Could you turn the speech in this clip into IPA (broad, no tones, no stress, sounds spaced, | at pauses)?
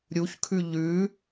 ɾʲ u ç kʰ ʉ ʎ ʉ